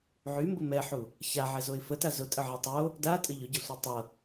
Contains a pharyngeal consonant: yes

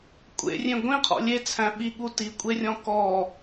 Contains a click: no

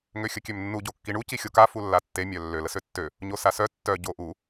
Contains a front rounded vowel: yes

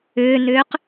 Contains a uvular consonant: yes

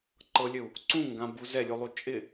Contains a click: yes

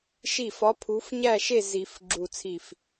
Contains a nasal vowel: no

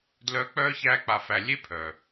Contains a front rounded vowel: yes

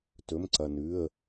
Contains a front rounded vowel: no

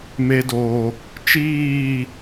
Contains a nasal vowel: no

